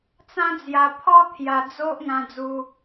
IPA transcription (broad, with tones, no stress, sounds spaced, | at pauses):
t͡s ã˦ d͡z j a˧ pʰ ɔ˦ t̪ʰ j a˧ d͡z o˦ ʔ ŋ ã˧ d͡z u˧